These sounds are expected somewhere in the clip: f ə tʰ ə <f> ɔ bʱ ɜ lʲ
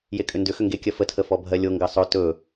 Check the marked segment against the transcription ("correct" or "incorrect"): correct